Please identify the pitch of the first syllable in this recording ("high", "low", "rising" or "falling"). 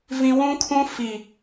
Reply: high